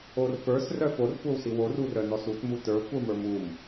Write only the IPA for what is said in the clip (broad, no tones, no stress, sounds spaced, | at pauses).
o r f ə˞ s r œ f o r kʷ ə˞ w s i w o r u r œ n ɔ s u t m u t ə˞ kʷ ə˞ m ə˞ m u m